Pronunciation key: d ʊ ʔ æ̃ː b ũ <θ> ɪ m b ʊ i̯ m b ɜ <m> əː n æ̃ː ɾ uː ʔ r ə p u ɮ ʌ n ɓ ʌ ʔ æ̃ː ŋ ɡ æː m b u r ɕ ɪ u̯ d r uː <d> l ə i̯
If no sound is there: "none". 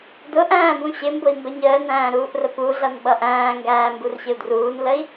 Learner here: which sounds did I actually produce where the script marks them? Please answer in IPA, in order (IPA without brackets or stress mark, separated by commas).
ɕ, ɲ, n